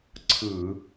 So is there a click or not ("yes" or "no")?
yes